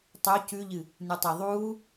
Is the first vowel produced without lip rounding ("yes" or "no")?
no